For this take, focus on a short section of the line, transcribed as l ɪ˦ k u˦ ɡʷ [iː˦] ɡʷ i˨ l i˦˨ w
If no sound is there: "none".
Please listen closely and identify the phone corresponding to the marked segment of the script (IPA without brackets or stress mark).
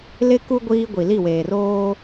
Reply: iː˦